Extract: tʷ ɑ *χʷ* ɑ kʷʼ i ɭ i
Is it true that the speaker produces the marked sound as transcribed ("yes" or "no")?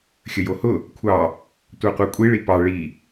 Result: no